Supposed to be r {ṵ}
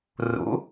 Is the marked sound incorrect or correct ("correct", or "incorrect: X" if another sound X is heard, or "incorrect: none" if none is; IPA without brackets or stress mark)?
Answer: correct